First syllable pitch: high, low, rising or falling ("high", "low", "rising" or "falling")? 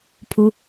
low